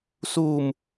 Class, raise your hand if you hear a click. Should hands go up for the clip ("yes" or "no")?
no